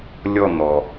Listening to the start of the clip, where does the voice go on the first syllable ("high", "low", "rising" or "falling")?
falling